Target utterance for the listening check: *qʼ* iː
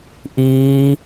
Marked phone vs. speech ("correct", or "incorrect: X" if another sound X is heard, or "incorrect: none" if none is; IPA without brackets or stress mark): incorrect: ʔ